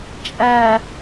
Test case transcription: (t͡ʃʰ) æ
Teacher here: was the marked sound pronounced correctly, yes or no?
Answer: no